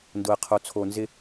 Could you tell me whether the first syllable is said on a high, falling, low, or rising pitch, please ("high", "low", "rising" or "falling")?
low